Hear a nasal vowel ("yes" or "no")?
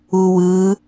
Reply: no